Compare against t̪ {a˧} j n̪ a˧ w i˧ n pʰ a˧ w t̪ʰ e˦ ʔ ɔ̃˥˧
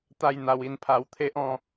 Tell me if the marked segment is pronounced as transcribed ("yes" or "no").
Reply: no